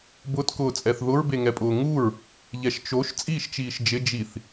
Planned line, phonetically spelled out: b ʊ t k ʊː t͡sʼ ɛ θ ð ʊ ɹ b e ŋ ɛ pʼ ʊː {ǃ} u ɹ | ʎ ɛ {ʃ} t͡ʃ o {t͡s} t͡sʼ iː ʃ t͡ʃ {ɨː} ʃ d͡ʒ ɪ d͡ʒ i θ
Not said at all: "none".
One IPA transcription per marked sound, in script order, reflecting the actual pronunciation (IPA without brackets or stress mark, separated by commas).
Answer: ŋ, ʃ, ʃ, iː